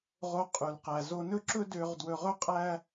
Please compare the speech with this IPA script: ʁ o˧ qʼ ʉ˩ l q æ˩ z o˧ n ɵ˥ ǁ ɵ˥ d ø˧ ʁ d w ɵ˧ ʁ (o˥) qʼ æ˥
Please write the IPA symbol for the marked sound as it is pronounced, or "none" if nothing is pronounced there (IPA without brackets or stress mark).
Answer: ɵ˥